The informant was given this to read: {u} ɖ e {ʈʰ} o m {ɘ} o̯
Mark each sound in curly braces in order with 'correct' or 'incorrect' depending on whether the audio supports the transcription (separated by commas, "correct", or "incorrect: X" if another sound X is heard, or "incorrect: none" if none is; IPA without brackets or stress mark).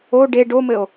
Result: incorrect: o, incorrect: ɖ, correct